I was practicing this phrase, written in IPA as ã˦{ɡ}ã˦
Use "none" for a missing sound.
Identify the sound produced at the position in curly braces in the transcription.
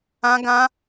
ɡ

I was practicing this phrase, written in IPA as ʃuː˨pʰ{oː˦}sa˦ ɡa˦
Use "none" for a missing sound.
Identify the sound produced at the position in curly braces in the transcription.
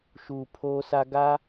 oː˦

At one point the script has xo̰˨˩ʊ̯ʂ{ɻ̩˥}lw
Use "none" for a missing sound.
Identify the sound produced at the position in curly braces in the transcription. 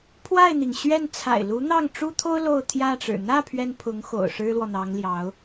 ɻ̩˥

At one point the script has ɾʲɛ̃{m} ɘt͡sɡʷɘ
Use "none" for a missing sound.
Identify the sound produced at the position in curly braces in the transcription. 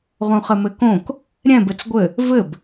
b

